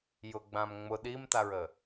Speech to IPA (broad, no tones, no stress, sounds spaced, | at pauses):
j ʊ ɡ͡b ã m ŋ͡m ʊ ɗ i m t a ɹ ə